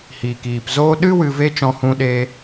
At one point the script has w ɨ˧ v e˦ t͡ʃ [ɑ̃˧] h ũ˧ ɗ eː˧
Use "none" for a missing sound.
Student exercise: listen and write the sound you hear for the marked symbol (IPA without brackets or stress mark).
ɔ̃˧